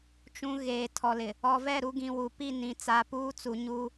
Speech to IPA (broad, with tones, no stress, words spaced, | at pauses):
t͡ʃũ˨ ɣeː˨ tʰɔ˨lɪ˨ | ɔ˨vɛ˦˨ɾu˨˦ ɡĩ˨wu˨pi˦˨ nĩ˨ t͡sa˨puː˦t͡su˨ɲu˦